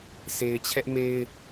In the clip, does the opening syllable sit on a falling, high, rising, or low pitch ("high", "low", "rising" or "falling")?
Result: low